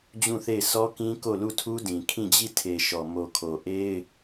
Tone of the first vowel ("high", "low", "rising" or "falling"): falling